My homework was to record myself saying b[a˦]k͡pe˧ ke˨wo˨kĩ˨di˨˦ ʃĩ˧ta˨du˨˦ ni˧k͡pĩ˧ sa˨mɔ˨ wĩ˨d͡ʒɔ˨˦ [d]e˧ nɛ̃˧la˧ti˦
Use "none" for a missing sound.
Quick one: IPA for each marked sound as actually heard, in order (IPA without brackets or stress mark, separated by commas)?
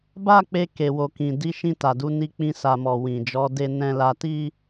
a˦, d